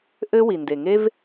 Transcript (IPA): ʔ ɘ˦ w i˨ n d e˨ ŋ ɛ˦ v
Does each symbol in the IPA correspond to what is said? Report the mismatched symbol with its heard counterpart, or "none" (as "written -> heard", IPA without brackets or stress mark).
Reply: ɛ˦ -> e˦